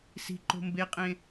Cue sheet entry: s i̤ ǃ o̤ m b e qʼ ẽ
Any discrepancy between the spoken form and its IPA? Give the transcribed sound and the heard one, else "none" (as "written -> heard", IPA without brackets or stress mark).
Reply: none